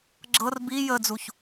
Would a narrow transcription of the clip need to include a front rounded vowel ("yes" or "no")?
no